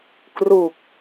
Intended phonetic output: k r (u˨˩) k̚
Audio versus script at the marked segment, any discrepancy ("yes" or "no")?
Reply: no